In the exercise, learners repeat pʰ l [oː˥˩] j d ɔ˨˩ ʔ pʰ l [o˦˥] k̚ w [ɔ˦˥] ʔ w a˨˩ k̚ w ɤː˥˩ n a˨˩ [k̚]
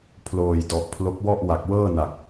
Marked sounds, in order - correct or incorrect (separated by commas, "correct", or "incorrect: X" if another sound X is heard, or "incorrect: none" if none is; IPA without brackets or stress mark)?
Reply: incorrect: oː˨˩, correct, incorrect: ɔ˥˩, correct